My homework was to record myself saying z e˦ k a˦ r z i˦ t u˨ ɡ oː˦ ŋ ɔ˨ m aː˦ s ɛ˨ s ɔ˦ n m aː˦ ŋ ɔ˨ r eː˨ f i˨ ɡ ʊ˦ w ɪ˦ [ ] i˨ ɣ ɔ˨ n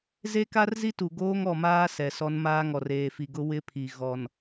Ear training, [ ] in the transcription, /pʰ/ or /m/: pʰ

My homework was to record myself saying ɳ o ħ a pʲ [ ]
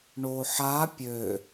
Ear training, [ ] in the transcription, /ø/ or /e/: ø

